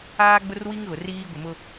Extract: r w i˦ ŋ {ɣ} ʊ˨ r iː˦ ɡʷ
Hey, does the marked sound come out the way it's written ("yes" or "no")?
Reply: yes